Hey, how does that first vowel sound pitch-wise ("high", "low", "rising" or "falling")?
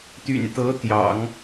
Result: low